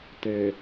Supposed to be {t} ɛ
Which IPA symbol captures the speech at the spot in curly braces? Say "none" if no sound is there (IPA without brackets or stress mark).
t